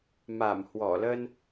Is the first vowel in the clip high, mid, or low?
low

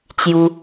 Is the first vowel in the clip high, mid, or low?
high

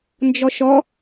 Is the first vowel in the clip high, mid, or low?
mid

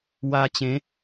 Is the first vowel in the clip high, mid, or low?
low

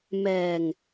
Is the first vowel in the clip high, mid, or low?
mid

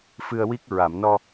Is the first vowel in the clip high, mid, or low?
high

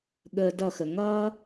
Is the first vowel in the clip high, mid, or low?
mid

